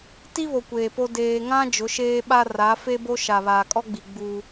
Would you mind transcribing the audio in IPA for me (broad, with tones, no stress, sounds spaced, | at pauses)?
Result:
t i˦ β o˨ kʷ eː˨ p o˦ d eː˨ ŋ ã˦ d͡ʒ ʊ˨˦ ʃ eː˦ ɓ a˦ r a˨˦ f e˦ b o˦ ʃ a˨ β aː˨ kʼ ɔ˦ ɡ͡b i˨ ɡ͡b uː˦